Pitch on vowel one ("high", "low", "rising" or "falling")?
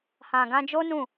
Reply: low